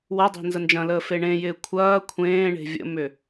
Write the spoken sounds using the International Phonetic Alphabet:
wɐdˤe̤ nzənd͡ʒɐ̃ləː feɳẽjɪː kʷʰɐː kʷʰẽːɳe̤ vʲə̰mʏ

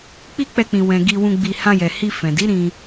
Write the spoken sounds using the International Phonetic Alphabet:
k͡pi˦k͡pɛ˧k͡pĩ˨ wɛ̃˨ɡi˧wũ˧ ɡ͡bi˧ hã˧jɛ˨hi˧ fɛ̃˨di˨˦ ɾĩ˧

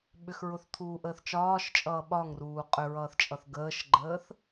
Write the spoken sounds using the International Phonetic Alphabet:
ɓʏxɹʊθt̪ʰuːʔəːθ t͡ʃɒːʃt͡ʃʼʌː ɓɒŋruː qʼʏɹʌːθt͡ʃʼʌθ ɡəːʃɡ͡ǃəːθ

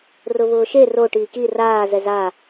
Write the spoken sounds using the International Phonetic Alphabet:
rʊβʊːʃe ro ʈiːki raː zɛza

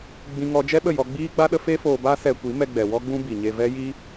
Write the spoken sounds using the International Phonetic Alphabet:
ɡ͡bĩ˦ŋɔ˦ d͡ʒɛ˦ɓə˦˨ jɔ˧ɡ͡biː˦ɡ͡ba˦ɗə˦ fe˦foː˧ba˦ sɛ˧kʷi˨˦ mɛ˧ɡ͡bɛ˨wɔ˦ ɡ͡bũ˦bi˨ɲe˧ vɛ˦ ji˦

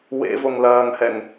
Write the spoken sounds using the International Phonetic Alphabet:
wḛvoŋ lɐːŋhɛŋ

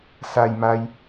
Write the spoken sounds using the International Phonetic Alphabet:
sa˧jma˧j

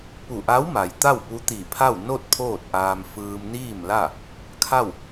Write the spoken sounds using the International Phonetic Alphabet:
pu˧˩ʔa˧˥wma˩j t̪a˥˨wpu˧˥ t̪i˧˩pʰa˥˨w no˥˨t̚ pʰoː˥˨t̚ʔaː˧m fɯː˧m niː˥˨mla˥˨ | kʰa˥˨w

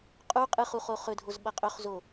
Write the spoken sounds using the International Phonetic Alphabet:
qʼu qʼɨχuχo χɵdʱozɓɐ qʼɵχzo

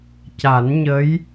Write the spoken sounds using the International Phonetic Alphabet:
ca˨˩˦nɲə˧˥j

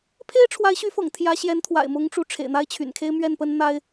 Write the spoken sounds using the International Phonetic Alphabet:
pʰe˥ɪ̯ʈ͡ʂʰwa˧˥ɪ̯ɕy˧˥fɤ̰˨˩ŋ t̪ʰjä˧˥ɕjɛ˧˥nt̪ʰwa̰˨˩ɪ̯mʊ˧˥ŋ ʈ͡ʂu˧˥ ʈ͡ʂʰḛ˨˩ɪ̯n̪a˥ɪ̯t͡ɕʰy̰˨˩nkʰe˥ɪ̯ mɥɛ˥˩npə˥nn̪a˥ɪ̯

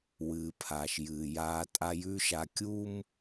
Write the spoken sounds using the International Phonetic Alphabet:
wɨː˨pʰa˨ʃjɨː˨jaː˦ tʼa˦jʉ˦ ʃa˨kʲu˦m

